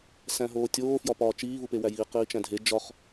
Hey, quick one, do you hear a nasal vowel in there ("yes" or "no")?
yes